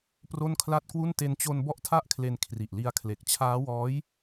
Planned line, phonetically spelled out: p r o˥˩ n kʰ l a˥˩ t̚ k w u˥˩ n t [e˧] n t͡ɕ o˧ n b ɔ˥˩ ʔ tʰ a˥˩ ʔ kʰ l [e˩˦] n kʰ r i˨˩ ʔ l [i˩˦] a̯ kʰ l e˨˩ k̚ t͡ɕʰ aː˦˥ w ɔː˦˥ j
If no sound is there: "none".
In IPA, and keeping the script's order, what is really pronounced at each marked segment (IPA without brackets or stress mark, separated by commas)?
e˧, e˧, i˧